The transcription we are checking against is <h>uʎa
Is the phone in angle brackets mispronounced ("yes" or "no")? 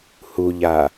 no